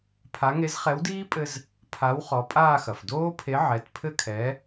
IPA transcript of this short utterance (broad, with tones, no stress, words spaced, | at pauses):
pʰa˨˥ ŋe˨˥zχɛ˨˥wdiː˦˥pʼɘ˧z | pʰa˨˥w χɔ˨˥pʼaː˥˧xɐ˩f doː˦˥pʰe˨˥ʕɛ˩˧˩t pʰɘ˥˧kʰɛ˨˥